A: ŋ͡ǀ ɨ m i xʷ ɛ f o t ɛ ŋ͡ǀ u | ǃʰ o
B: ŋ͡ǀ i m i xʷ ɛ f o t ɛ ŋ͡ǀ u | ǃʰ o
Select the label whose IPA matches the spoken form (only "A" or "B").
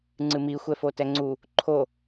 A